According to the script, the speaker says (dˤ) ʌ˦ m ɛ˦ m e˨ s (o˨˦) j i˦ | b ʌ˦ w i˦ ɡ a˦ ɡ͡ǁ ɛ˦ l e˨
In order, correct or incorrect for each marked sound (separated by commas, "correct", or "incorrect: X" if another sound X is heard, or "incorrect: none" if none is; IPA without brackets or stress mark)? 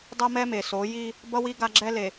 correct, correct